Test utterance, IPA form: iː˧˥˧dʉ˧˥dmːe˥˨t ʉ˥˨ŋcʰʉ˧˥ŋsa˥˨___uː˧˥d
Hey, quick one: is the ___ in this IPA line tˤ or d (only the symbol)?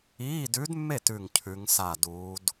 d